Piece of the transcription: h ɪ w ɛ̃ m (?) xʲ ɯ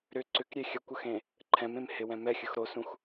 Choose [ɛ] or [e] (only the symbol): ɛ